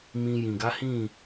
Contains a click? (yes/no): no